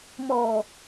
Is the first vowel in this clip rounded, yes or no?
yes